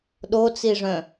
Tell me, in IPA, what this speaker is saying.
ɗ o t͡s i ʐ œ̃

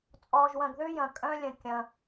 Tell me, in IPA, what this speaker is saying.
t͡sʼ ɔː˧ ʒ w ɐ̃˧ ɡ ð ʏː˦ j ɐ̃˧ kʼ œ̃˦ lʲ ə̃˧ kʲ ɐ̃˧

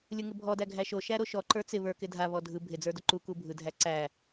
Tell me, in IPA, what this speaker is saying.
lʲ ɯ ŋ ɪ bʱ ɔ d æ ɡʱ æ ʃ o ʃ æ ɾ o ʃ ɔ ǃ ə˞ t͡s ɪ β ə˞ k ɪ dʱ a β ɔ dʱ ɯ bʱ ɪ d͡z ə˞ d o ǃ u k u bʱ ɯ dʱ æ ǀ æ

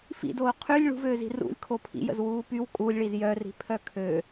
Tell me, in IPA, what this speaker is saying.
f ḭ d oː qʰ y lʲ ɭ ṳ v øː z i̤ r ṵ lʲ kʰ o pʰ ḭ j ə̰ z w uː p y w kʼ u lʲ ɭ i z j œ r i̤ pʰ œ kʰ ø

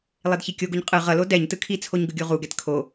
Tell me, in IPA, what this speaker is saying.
lˠ e d ç i kʲ o ɡ u ɲ qʼ ɯ ʁ ʌ l o d ɛ ɲ t ɯ kʰ i t͡sʰ o ɲ ɡ ɯ ɡʲ u ʁ u ɡ ɛ t kʰ o

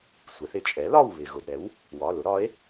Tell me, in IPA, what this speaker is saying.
sʷ ɛ˩˧ θ ɪ˩ t͡ʃʼ ɛ˩˥ l ɒ˦˨ w β ɪ˩ ɣ ʊ˩˧˩ d ɾ ɛ˩˥ w | w ɒ˩˧˩ l ʊ˩˥ ɾ ɒ˩˥ e̯

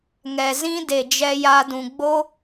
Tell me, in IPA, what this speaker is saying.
ŋ ɛ˨ z ĩ˦ d e˨ d͡ʒ ɛ˧ j a˧ d ũ˨ ɡ͡b o˦

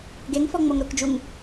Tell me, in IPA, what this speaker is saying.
ɡ e ŋ f ɔ ŋ͡m o ŋ ɾ ʊ k d͡ʒ u ŋ

